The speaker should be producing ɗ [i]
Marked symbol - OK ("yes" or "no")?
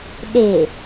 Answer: no